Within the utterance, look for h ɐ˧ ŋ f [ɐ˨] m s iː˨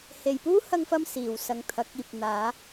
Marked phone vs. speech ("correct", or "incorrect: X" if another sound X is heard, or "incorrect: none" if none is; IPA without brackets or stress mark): incorrect: ɐ˧